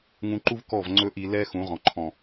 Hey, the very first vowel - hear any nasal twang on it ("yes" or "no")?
yes